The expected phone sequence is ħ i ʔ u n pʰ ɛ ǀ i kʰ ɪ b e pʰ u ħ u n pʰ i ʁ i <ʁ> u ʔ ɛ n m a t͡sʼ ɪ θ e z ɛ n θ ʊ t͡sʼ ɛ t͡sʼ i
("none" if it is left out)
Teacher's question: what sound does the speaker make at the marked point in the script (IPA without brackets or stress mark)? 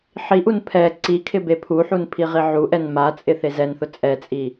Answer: ʕ